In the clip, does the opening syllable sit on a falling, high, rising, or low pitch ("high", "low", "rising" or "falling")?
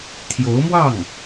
rising